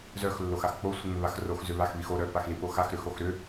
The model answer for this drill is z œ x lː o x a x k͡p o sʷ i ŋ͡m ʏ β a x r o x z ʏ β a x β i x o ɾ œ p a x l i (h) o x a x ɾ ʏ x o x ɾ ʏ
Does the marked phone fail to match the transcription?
yes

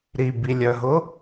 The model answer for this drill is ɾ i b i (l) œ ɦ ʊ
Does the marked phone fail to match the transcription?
yes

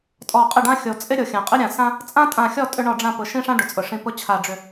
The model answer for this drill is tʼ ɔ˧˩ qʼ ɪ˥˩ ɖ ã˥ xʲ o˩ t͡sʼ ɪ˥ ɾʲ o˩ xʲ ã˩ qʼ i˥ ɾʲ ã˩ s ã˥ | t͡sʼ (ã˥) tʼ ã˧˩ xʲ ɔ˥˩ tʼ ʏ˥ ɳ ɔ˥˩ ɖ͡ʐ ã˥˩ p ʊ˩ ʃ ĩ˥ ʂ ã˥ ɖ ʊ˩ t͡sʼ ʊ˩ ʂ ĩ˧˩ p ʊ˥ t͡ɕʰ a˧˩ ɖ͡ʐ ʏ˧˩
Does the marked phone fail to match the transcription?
no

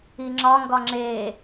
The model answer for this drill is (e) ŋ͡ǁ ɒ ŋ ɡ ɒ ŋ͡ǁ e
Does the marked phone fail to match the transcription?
yes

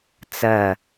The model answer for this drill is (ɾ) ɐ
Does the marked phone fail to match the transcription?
yes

